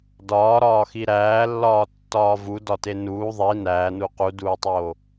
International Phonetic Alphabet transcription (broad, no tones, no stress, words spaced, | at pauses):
dɒːɾɒːxi ɾæːlːɒːtːɒː vudɒte nuː ðˤi næːnu quduːtˤoː